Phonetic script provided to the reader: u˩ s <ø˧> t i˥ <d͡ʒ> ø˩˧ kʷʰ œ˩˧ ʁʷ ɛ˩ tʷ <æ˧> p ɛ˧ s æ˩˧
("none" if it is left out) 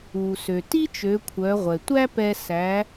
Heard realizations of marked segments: ø˩, t͡ʃ, æ˥

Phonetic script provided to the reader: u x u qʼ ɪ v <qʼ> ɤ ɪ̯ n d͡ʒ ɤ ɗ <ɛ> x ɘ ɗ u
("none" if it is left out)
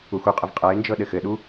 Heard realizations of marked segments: qʼ, ɘ

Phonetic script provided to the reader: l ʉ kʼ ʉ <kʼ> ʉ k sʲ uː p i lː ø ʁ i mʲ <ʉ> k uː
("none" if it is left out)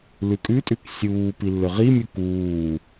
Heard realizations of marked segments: tʼ, u

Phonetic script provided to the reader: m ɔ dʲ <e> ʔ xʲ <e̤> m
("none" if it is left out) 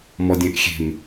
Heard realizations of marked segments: ẽ, e̤

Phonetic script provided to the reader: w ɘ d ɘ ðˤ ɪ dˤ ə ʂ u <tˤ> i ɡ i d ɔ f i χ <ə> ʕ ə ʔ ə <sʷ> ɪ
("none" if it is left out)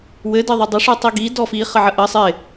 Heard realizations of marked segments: tˤ, ə, sˤ

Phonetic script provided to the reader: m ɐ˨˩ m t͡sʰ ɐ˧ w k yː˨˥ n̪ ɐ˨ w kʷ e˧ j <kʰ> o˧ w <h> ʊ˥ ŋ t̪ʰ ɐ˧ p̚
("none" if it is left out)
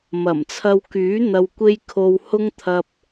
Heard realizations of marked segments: kʰ, h

